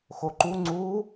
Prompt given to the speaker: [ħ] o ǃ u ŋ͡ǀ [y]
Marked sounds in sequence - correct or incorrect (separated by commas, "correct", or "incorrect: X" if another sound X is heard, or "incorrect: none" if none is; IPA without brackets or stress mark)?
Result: incorrect: x, incorrect: u